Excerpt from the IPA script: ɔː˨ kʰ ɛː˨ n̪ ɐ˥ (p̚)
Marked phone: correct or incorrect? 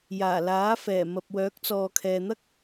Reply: incorrect